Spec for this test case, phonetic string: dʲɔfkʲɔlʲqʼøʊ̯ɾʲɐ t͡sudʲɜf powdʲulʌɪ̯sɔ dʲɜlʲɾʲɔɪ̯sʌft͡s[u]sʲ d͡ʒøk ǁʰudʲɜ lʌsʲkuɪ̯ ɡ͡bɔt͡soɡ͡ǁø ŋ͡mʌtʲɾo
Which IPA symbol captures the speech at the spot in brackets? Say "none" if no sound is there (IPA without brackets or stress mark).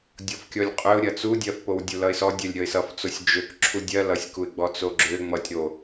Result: o